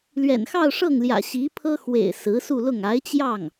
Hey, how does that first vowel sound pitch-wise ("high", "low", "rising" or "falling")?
low